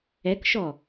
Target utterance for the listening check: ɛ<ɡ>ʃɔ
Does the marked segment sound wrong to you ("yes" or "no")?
yes